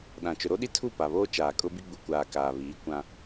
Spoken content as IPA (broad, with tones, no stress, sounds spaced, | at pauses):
ɗ ã˨ t͡ʃ ʊ˨ ɾ o˦ ɗ i˦ tʰ u˦˨ p a˨ β oː˦ t͡ʃ aː˨ kʼ ʊ˦ b i˦ ɡ͡b u˨ kʷ aː˨ k aː˨ β iː˨˦ kʷ ã˦